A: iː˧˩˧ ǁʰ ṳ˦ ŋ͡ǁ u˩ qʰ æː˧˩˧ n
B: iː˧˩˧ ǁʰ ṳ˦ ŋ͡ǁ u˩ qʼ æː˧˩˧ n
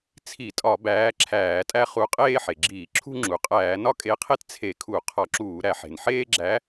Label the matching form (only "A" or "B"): B